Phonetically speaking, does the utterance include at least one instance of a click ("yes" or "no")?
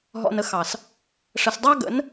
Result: no